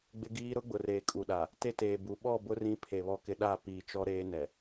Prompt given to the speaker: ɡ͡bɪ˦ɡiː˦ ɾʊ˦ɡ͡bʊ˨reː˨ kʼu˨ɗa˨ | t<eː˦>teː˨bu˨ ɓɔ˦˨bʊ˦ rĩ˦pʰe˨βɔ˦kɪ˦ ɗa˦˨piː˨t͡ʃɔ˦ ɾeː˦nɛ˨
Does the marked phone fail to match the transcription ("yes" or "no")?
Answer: yes